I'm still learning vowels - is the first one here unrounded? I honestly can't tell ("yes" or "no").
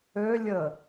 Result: no